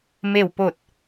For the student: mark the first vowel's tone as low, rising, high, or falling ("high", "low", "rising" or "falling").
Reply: falling